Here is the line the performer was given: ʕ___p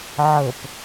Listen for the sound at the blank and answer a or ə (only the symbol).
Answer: ə